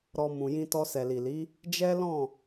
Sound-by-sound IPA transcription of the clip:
ɾ ɔ˧ m ũ˨ j ĩ˧ t ɔ˧ s ɛ˨ l i˨ l i˨˦ | d͡ʒ ɛ˦ l ɔ̃˦˨

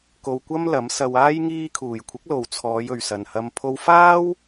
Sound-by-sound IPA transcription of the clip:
k o˧ w kʷ ɐ˥ m l ɐ˨˥ m s ɐ˧ w aː˥ j ŋ iː˧ kʰ uː˨˩ j kʷʰ ɪ˨˥ k̚ l o˨ w t͡sʰ ɔː˨˧ j ɵ˨ ɥ s ɐ˨ n h ɐ˧ m pʰ o˧ w f aː˥ w

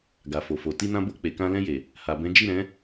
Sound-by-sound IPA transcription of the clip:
ɡ a˨ f o˨ f o˨ t i˧ n ã˧ b o˧ k͡p e˨ k ã˧ l ɛ̃˧ j e˨ | h a˨ b ɛ̃˨˦ d͡ʒ i˦˨ ɾ ɛ̃˨˦

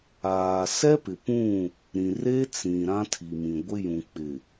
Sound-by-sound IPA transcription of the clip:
aː˨ s ɛ˦ p ɪ˨ p ũ˦˨ | ɾ ĩ˨ r e˦ t͡s ĩ˨ ɾ ã˦ tʰ i˨ m ĩ˨ ɡʷ ɪ˦ j ũ˨ k͡p ɪ˨

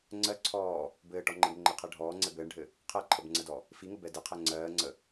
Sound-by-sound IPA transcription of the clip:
ŋ͡ǀ ɜ ǀʰ ɔː | b ɘː ʈ ɔ ŋ͡ǃ ɘ ɡ ŋ͡ǃ ɘ qʰ ɛ ɖʱ ɔː ŋ͡ǀ ɛ b ɘː ɳ ɖʱ ɘ | qʰ ɜ ǃʰ ə b ŋ͡ǀ ə d ɔ | f i ŋ ə b ɛ d ɘ qʰ ɛ ŋ͡ǀ ɜː ŋ͡ǀ ə

